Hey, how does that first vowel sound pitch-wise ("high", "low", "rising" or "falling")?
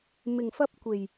low